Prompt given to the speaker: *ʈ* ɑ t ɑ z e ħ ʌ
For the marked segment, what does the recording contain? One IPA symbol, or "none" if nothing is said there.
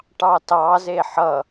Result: ʈ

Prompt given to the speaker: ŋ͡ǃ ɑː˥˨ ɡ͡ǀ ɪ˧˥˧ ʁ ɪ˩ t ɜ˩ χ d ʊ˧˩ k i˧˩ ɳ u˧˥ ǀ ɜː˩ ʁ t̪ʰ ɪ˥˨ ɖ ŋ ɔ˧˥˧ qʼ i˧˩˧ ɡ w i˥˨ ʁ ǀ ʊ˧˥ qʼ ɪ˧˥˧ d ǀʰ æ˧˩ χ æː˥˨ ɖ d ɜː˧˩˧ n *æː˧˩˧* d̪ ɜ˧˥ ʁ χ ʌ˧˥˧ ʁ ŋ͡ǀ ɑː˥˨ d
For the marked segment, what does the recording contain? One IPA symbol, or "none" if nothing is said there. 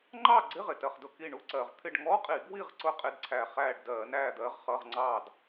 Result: æː˥˨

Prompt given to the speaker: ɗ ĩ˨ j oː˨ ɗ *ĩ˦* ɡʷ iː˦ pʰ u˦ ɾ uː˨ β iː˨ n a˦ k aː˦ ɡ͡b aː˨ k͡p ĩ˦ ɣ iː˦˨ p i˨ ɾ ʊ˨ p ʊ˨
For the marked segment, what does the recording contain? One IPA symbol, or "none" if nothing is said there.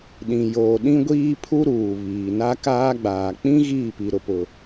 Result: ĩ˦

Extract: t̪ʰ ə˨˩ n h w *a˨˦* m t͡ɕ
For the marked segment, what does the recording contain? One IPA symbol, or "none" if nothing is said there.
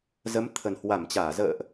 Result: a˧˩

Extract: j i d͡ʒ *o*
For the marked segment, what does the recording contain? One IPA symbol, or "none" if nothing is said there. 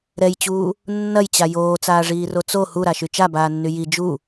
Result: u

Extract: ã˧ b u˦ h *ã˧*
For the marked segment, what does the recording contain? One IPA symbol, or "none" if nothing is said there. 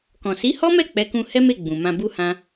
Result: ã˦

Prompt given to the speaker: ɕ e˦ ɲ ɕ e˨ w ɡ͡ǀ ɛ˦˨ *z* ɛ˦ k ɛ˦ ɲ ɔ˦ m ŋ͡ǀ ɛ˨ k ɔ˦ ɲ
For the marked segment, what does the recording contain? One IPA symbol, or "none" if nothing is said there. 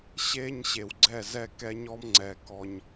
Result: z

